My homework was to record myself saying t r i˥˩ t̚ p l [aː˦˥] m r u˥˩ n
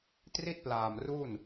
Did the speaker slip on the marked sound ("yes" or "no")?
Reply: yes